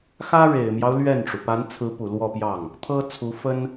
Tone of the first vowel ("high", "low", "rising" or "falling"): high